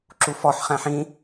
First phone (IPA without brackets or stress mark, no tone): ǁ